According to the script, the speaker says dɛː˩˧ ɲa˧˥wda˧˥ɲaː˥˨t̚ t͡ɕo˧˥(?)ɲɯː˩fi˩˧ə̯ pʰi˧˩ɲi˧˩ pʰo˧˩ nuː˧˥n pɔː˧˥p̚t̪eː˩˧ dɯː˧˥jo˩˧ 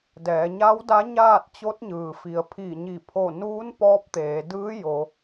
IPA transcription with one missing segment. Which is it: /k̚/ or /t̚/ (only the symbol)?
t̚